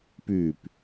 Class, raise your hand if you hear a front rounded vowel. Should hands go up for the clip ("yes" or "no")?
yes